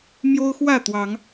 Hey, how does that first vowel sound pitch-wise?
high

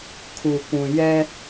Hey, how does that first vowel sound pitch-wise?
low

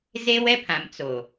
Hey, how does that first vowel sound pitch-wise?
high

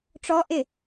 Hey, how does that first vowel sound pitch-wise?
high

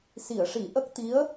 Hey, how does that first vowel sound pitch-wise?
low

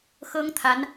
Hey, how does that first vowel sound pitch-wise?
high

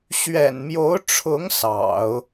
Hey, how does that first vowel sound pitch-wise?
low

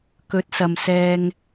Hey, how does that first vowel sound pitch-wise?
rising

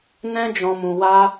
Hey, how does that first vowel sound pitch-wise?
high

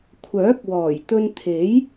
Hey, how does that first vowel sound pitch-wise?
rising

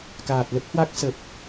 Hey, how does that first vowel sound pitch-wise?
low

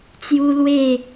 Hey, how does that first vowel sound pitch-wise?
high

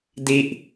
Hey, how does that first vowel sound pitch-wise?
falling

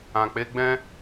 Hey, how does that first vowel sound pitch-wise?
low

